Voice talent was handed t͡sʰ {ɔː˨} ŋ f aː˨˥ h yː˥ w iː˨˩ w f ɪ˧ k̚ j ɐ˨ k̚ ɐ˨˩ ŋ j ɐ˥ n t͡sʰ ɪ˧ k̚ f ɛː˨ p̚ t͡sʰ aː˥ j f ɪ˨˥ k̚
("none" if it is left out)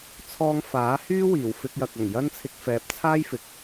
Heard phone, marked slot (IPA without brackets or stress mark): ɔː˧